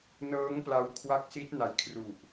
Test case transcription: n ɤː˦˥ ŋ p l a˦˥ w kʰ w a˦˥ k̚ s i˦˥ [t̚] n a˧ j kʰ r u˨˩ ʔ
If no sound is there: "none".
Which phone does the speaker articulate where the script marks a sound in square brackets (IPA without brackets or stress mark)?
t̚